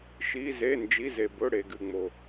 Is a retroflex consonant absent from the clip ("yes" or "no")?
no